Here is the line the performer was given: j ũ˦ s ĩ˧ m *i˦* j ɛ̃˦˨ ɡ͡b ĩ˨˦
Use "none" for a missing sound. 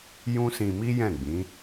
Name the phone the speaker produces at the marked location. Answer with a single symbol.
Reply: i˦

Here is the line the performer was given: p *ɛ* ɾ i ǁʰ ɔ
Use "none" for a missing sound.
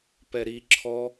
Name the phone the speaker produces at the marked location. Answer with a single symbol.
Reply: ɛ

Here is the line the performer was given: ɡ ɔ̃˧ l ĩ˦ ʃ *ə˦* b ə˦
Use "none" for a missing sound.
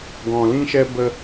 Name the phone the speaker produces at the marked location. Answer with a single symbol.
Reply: ɛ˦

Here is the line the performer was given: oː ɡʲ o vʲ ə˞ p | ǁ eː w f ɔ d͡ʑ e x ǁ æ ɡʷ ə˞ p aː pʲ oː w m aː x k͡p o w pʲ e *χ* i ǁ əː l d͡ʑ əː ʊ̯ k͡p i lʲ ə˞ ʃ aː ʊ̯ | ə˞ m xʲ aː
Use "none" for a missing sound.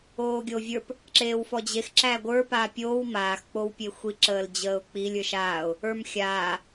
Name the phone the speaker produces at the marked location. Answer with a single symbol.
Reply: xʷ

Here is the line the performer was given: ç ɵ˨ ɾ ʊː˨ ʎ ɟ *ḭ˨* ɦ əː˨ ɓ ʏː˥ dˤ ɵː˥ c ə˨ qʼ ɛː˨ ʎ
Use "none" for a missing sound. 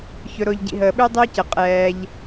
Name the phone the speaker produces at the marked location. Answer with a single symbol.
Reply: ḭ˨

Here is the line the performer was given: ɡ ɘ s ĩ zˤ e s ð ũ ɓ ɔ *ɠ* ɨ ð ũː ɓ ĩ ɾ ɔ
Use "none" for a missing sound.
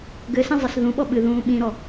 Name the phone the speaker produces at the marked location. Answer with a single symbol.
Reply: ɓ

